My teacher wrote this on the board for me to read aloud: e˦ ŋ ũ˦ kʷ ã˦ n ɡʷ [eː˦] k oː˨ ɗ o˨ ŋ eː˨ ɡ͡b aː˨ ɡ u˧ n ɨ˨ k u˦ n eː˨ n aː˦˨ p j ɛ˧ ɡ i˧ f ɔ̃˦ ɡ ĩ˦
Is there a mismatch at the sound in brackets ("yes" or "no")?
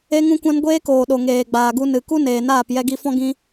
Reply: no